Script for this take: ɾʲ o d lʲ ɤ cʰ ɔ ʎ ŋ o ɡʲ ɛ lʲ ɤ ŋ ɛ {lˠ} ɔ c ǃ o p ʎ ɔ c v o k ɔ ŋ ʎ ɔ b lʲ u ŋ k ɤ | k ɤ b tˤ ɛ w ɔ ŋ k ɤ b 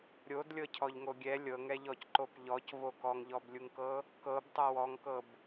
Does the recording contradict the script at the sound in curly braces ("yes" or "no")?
yes